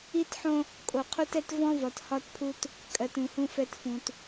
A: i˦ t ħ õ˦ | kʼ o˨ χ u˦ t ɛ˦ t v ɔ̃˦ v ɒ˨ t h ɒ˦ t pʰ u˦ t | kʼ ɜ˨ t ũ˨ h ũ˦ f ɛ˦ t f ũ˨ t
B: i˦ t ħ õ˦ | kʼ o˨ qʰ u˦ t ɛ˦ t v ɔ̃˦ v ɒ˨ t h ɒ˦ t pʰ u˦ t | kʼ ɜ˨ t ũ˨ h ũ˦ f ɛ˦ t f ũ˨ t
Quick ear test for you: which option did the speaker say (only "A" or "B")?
B